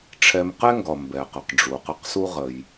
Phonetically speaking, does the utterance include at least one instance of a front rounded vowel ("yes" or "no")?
no